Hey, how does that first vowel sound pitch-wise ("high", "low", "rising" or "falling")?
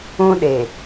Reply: high